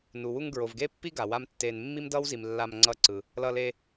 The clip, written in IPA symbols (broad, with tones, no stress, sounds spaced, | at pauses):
n u˨ w u˧ ŋ ɡ ɹ o˨ v ɡ e˦ pː i˦ ɡ a˨ w a˦ m tː e˧ n mː i˦ m d ʌ˦ w z i˨ m lː a˧ m ŋ͡ǀ ʌ˧ ǀ ɯ˨ | l ʌ˧ l e˧